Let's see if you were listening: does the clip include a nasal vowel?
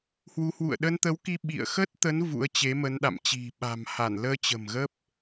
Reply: no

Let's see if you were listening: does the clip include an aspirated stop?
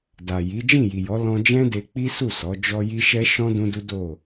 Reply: no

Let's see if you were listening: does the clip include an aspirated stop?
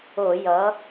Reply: no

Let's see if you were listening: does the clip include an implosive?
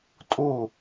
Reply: no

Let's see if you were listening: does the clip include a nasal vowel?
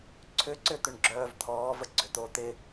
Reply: no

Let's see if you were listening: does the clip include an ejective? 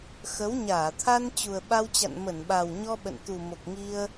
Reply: no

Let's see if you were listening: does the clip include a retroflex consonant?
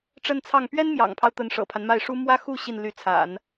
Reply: yes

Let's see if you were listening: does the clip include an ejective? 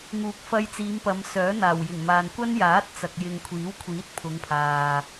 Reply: no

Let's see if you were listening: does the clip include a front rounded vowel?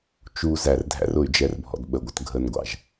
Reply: yes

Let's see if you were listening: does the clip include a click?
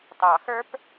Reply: no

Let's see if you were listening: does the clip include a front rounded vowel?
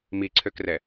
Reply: yes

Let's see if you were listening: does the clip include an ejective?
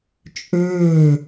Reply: yes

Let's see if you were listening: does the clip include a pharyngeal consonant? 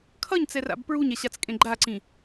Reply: no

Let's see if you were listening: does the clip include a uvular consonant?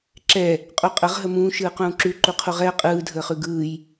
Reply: yes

